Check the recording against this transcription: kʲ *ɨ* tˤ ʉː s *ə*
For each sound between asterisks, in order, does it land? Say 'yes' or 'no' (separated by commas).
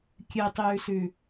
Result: yes, no